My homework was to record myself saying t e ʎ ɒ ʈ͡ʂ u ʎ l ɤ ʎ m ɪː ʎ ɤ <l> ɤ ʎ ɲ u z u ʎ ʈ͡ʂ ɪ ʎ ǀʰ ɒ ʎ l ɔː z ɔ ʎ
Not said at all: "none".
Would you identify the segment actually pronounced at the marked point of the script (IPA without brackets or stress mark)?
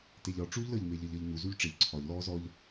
ʎ